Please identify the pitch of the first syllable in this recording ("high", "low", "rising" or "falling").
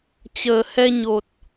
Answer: low